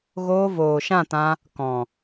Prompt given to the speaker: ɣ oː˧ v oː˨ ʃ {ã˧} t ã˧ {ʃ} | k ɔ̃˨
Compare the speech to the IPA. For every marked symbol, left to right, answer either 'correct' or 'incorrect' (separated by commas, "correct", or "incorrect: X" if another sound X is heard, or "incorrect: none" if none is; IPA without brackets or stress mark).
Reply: incorrect: ã˦˨, incorrect: none